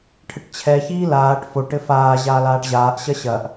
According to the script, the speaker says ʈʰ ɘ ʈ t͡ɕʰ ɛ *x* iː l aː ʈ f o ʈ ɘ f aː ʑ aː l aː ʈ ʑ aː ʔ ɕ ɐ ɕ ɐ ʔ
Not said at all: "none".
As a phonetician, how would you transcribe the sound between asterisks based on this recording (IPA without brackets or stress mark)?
ç